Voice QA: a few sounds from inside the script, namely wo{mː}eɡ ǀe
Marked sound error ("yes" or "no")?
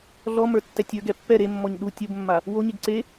yes